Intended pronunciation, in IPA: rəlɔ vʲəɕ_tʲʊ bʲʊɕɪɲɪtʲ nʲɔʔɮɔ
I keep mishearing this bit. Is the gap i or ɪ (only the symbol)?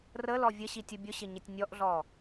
i